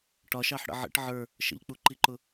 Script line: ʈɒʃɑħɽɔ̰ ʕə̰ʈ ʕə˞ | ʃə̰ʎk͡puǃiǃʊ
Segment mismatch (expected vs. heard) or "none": ɔ̰ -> ə̰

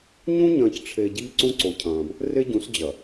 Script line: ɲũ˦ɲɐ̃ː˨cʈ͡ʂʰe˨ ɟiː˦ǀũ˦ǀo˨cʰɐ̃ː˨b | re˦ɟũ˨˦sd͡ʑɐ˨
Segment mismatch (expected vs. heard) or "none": none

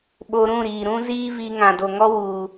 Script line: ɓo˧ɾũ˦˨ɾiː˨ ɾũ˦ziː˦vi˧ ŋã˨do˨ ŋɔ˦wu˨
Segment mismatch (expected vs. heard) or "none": none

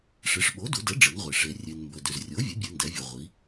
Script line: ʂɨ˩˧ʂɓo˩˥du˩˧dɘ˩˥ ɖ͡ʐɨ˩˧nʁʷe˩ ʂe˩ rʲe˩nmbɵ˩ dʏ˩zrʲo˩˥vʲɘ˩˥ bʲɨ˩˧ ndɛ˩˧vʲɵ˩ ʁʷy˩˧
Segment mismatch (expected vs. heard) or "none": y˩˧ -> i˩˧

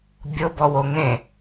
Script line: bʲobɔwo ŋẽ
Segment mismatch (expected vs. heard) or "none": none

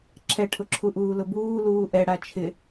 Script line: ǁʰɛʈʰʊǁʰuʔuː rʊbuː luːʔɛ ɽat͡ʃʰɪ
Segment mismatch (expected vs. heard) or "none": r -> l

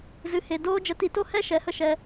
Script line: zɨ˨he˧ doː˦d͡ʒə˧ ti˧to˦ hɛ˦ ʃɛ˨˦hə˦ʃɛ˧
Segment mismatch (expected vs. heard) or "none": e˧ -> e˨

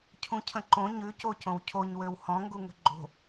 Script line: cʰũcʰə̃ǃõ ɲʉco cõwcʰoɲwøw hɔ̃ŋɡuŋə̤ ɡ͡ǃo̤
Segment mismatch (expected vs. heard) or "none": none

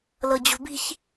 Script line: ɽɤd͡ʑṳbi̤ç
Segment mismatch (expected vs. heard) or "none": ɽ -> l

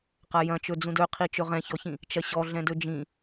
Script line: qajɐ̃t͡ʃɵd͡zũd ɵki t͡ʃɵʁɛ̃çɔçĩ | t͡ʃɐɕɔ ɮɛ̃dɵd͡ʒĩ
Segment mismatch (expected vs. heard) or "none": k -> qʰ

